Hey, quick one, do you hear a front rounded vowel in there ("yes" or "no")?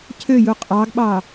yes